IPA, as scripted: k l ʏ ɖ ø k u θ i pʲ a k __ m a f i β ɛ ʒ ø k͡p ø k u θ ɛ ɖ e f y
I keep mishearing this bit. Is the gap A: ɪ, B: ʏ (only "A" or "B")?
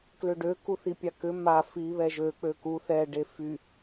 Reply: B